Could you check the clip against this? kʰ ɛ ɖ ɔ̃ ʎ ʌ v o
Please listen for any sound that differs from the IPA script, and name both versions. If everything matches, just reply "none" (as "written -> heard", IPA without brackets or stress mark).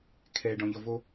none